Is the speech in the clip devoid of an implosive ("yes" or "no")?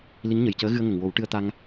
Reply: yes